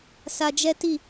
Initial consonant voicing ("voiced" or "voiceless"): voiceless